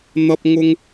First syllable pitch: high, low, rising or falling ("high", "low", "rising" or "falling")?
high